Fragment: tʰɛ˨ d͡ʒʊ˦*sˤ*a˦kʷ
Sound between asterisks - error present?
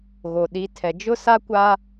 yes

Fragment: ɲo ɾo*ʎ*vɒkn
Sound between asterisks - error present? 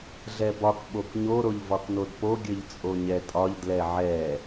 no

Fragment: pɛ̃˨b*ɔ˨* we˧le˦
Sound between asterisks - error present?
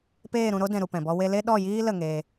yes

